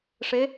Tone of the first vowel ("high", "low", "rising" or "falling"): rising